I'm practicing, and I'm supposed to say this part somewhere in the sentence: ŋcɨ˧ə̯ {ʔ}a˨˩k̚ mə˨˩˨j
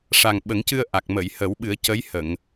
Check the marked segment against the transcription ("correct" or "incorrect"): correct